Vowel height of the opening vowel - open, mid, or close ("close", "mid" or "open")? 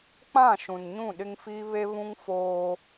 open